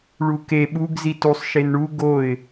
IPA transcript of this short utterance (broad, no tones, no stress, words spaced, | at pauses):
ɭuke ɓuɡ zitusˤ ʃenɳu ɡoɪ̯